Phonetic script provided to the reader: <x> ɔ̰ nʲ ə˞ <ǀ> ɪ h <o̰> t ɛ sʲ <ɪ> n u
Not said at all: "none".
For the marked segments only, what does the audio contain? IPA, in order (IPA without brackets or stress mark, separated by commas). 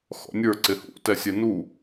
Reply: x, ǀ, ṵ, ɛ